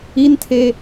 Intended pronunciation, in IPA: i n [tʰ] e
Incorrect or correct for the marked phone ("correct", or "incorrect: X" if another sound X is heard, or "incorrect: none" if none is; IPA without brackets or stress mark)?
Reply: correct